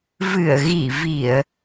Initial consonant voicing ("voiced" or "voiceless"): voiced